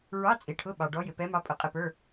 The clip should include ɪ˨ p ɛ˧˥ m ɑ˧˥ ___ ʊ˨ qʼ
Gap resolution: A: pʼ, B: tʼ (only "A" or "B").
A